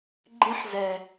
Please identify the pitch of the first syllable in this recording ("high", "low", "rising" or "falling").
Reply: high